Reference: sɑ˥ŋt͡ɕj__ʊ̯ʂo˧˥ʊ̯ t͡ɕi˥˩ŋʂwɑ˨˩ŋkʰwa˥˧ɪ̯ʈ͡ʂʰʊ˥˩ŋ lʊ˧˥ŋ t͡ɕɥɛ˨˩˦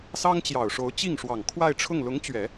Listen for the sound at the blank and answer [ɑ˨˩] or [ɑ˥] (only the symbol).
ɑ˨˩